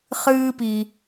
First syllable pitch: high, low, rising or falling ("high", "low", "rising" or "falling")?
high